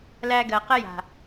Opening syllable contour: high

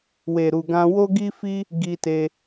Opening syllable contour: low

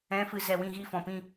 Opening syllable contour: rising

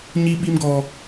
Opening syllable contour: high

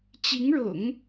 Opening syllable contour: rising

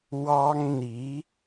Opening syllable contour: high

